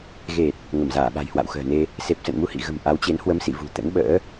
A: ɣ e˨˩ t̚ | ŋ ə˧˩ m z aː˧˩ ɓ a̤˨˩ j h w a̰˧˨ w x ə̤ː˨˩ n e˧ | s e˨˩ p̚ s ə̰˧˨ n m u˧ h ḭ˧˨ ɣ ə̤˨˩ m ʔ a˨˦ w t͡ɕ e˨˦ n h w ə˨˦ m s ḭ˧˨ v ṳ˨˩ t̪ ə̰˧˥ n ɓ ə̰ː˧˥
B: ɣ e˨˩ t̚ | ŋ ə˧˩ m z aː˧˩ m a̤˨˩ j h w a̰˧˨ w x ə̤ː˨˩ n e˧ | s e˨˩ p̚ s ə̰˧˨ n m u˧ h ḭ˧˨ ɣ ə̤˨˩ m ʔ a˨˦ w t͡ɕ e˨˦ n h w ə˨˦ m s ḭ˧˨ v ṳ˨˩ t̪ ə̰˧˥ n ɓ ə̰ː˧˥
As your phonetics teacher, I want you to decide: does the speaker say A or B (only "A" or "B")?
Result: A